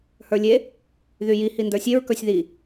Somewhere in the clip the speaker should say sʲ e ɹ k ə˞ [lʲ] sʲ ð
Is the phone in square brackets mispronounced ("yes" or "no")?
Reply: yes